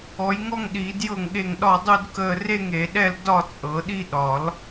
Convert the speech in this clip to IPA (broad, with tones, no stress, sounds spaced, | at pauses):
ɔ˨˩˦ j ŋ ɔ˥˧ ŋ ɗ iː˨˩˦ d j ɤ˥˩ ŋ ɠ e˥˩ ŋ ɗ ɒ˥˩ dˤ u˥˧ d k əː˥˧ r e˥˧ ŋ e˨˩˦ ɗ ɛ˥˧ l d ɒ˥˧ t͡sʼ ɤ˨˩˦ ɗ i˥˧ ɗ ɒ˨˩˦ l